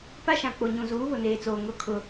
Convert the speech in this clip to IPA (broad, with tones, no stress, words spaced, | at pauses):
pa˦ʃã˨k͡po˨ɲũ˨ zuː˨˦βʊ˨neː˨t͡soː˨ ŋʊ˦˨ kʰʊ˦